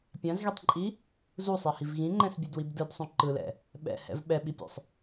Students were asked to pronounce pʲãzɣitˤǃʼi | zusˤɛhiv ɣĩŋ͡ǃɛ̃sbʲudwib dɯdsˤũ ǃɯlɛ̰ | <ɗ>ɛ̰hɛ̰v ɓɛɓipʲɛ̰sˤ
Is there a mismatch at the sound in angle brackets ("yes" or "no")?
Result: yes